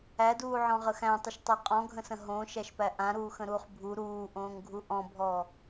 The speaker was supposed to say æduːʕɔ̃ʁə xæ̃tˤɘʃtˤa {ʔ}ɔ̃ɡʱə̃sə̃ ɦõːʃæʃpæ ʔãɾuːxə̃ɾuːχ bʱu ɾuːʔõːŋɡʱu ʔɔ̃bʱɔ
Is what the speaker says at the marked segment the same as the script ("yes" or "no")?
no